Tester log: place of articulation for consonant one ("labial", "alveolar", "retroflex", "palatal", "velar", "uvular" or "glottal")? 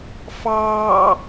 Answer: labial